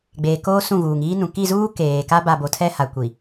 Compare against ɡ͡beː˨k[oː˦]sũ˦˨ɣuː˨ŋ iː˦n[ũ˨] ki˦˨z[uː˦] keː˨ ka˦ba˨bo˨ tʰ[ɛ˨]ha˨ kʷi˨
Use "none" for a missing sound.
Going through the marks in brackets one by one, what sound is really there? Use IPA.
oː˦, ũ˨, uː˦, ɛ˦

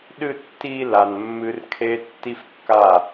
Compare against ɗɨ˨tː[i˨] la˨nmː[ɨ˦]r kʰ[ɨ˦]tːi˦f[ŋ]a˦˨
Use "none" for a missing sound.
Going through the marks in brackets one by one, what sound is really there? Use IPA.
i˨, ɨ˦, e˦, kː

